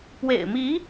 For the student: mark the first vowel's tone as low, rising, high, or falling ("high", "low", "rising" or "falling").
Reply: low